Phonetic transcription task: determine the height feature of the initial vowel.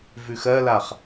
high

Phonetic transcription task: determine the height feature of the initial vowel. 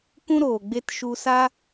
high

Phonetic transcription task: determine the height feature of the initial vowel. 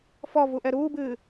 mid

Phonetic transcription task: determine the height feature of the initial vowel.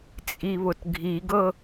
high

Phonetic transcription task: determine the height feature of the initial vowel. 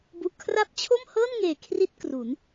high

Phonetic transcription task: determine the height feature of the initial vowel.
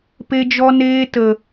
mid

